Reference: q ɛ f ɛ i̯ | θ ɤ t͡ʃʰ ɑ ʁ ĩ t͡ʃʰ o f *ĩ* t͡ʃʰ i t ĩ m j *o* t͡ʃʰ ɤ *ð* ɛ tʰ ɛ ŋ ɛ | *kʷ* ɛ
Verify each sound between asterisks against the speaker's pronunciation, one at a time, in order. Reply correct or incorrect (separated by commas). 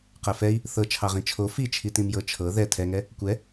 incorrect, incorrect, correct, correct